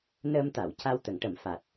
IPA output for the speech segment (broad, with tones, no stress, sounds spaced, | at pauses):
n əː˧ m t̪ a˨˩˨ w c a˧ w t̪ ə˨˩˦ ŋ ʈ ə˨˩˦ m f a˨˩ t̚